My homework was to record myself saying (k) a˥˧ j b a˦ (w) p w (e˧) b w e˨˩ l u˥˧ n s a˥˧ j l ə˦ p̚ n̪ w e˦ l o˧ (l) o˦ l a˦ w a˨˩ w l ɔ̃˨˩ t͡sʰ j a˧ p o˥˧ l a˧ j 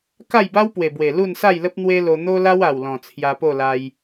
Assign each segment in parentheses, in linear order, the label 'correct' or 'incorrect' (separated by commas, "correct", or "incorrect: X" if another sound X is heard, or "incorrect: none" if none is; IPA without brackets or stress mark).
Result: correct, correct, incorrect: e˨˩, incorrect: n̪